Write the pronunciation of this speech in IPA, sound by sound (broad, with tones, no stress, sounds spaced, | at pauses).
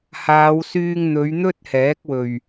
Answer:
h aː˨˧ w s yː˧ ŋ n̪ ɵ˨˧ ɥ n̪ ɵ˥ t̚ h ɛː˨˥ k̚ w ɵ˨˩ ɥ